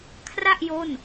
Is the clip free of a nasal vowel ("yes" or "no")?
yes